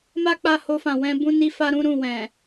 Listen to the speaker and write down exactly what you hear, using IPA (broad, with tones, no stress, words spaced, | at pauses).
ma˦k͡pa˧ ho˧fã˨ wɛ̃˧ bũ˦ni˦fa˦ ɾũ˦ ɾũ˦˨wɛ̃˨